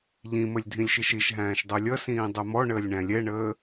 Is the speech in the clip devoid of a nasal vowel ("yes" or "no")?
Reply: no